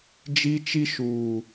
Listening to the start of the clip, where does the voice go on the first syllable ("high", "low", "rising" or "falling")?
high